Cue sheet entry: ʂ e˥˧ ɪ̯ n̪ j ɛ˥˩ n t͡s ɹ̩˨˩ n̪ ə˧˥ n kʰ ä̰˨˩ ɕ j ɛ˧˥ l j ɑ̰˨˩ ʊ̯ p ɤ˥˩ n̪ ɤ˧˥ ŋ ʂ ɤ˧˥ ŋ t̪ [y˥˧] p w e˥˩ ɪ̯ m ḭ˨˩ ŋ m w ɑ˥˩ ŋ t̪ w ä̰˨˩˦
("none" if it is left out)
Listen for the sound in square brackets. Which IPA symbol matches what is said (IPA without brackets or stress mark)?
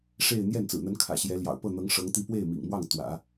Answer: i˥˧